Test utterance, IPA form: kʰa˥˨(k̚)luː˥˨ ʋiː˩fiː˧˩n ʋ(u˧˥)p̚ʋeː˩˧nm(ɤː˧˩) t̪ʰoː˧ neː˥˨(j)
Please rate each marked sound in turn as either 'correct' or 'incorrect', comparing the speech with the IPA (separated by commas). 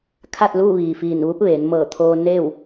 incorrect, correct, correct, incorrect